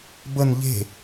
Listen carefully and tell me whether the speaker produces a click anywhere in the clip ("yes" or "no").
no